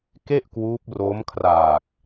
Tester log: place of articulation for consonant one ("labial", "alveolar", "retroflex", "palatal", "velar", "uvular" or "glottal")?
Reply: velar